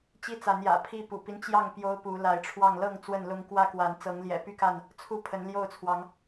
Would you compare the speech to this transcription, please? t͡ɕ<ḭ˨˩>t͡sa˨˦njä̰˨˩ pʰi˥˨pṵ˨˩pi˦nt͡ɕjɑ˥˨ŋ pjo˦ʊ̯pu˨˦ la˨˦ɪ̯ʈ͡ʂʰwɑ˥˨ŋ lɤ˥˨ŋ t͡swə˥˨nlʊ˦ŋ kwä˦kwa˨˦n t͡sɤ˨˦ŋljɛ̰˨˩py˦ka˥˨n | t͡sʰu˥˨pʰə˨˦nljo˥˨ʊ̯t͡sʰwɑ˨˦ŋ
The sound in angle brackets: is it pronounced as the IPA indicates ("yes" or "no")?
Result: no